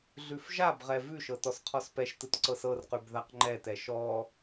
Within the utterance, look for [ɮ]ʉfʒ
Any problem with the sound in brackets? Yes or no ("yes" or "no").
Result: no